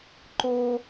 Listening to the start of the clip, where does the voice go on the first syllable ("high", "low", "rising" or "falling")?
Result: high